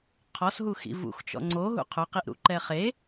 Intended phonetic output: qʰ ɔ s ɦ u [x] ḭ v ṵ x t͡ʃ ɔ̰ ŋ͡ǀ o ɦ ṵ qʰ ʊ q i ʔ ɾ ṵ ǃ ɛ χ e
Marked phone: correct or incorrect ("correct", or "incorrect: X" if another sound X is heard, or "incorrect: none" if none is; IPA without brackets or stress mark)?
correct